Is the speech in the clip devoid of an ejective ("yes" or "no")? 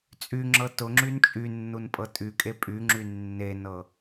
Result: no